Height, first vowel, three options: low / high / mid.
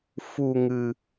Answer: high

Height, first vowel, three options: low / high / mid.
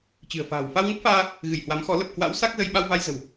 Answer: high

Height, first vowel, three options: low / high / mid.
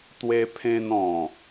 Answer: mid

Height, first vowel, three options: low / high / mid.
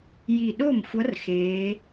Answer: high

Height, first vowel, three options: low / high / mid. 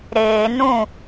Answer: mid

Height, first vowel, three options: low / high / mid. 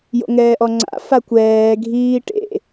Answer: mid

